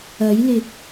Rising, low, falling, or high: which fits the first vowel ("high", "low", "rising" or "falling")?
rising